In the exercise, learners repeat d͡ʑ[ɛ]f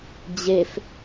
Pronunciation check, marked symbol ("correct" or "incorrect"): correct